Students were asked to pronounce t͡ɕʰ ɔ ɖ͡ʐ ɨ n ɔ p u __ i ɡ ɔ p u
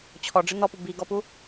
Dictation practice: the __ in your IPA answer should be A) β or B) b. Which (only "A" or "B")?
B